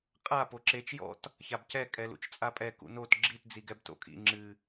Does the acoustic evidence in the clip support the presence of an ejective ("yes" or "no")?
yes